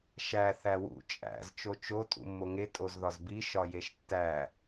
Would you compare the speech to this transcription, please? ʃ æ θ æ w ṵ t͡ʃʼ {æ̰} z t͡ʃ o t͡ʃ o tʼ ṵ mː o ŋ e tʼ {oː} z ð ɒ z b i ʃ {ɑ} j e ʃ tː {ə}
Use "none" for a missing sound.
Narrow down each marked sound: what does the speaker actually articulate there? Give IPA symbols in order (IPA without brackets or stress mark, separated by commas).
æ̰, o, ɒ, æ